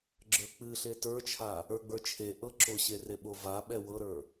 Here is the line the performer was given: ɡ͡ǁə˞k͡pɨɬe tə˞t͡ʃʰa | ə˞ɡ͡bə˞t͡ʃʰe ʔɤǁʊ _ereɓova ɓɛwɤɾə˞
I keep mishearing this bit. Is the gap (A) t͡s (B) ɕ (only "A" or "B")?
B